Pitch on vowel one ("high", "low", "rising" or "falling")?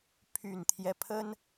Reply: low